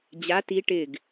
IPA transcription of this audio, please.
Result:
d͡ʑ a t i ʈ ɪ ɡ

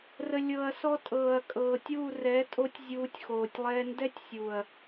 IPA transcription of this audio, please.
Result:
r ə˨ lʲ ɤː˨ ɐ̯ s ɔ˧ tʼ ɤː˨ ɐ̯ kʼ ɤː˨ tʲ uː˦˨ r ɛ˨˦ tʼ o˦ tʲ zʲ uː˧ tʲ x oː˨ tʲ lˠ ɛː˦ n d ɛ˦ tʲ sʲ uː˨ ɐ̯

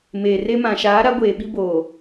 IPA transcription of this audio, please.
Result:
m eː˨ r e˦ m ã˨ ʃ aː˨˦ ɾ a˨˦ ɡʷ eː˨ ɓ i˦ b oː˨

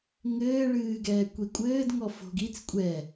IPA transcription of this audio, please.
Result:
ŋ ɘː ɭ ɨː ɡ ɛː kʷ i kʷʼ ɘː d ŋ ɔ f o̤ ɡ i t͡s kʷʼ ɛ

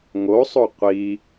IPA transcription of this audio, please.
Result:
ŋ o sˤ o qʷ i

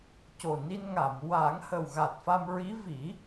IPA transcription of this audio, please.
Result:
c o˨˩ n i˧ n ŋ a˨˩˨ m w aː˨˩˦ ŋ h ə˨˩ w ɣ a˨˩ t̚ f a˧ m ɹ i˧˥ v i˨˩˦

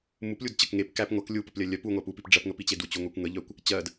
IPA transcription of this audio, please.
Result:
m u p lʲ u d t͡ɕ ə k ŋ e p k æ p ŋʷ ɜ k lʲ u p ə p lʲ ɜ lʲ œ p u ŋʷ æ p u p i p ɖ͡ʐ ɜ p ŋ ə p i t͡ɕ e d u t͡ɕ u ŋʷ e kʷ ŋ ə ʎ œ kʷ | t͡ɕ ɜ d

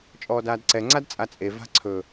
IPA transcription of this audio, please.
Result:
t͡ʃʼ ɔː d aː d ǀ ɛ ŋ͡ǀ a d t͡sʼ a t͡sʼ e v a̤ ǀʰ ɵ

